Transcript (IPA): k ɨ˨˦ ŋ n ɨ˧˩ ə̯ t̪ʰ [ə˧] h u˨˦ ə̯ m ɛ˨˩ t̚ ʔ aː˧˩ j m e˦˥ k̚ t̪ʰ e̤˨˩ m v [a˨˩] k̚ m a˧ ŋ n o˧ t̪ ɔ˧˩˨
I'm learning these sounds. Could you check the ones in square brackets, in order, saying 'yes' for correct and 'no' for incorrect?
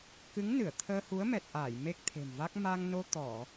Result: no, no

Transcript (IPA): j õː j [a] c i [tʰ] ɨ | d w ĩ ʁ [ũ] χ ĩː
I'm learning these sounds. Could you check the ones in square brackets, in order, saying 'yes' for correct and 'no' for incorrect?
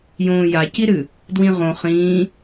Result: yes, no, no

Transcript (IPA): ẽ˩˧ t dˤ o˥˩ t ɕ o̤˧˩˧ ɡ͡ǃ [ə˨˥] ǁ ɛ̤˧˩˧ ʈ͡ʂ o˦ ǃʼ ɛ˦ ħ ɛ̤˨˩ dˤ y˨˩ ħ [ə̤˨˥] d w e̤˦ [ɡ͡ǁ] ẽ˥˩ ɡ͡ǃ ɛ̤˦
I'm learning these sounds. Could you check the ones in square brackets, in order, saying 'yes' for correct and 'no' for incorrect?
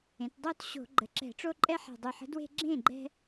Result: no, yes, yes

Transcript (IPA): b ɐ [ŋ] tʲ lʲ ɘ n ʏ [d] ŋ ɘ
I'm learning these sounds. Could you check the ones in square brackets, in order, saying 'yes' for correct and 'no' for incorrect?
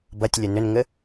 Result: no, no

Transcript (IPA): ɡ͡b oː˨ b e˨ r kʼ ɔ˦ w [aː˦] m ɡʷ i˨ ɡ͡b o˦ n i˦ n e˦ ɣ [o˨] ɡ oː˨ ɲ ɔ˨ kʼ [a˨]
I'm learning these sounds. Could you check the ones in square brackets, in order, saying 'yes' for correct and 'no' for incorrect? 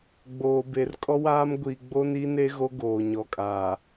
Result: yes, no, no

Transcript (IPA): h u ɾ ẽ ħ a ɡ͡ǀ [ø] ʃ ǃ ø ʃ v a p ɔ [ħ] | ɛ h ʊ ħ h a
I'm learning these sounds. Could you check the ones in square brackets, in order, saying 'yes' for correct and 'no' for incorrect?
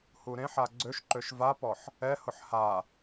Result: yes, yes

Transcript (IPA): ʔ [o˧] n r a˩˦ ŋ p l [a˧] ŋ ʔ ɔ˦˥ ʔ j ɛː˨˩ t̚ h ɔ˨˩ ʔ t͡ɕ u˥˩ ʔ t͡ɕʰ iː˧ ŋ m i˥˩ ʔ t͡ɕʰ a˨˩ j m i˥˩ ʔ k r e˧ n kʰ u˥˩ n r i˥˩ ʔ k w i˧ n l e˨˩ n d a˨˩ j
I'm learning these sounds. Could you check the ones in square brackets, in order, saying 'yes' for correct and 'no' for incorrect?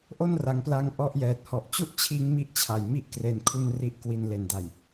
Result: no, yes

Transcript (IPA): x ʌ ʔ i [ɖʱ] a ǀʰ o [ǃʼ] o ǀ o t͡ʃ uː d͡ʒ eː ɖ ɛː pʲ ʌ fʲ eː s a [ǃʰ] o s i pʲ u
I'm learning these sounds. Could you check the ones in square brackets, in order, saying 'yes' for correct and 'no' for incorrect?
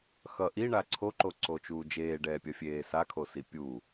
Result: no, no, no

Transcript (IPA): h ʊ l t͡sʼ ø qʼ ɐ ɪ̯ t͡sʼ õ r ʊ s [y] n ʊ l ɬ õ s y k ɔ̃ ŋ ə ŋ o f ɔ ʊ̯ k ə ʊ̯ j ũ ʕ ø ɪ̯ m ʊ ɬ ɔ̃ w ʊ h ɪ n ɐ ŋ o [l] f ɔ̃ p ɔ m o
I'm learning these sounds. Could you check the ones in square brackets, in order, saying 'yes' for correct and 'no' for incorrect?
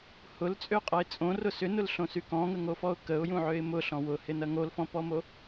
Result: no, yes

